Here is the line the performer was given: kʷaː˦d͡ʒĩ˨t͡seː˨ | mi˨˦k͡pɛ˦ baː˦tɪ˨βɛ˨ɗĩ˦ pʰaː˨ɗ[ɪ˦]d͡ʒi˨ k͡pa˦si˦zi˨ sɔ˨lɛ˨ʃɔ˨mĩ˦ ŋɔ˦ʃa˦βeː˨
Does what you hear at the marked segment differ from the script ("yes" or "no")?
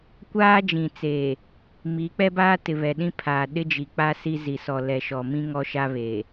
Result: no